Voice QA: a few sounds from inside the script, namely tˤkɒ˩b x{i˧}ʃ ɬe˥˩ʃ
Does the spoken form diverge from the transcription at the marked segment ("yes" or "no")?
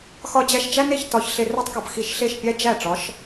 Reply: no